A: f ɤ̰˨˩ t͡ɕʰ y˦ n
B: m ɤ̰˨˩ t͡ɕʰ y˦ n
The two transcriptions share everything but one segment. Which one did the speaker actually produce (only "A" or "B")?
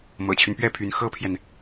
B